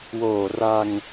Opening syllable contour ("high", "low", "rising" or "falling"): low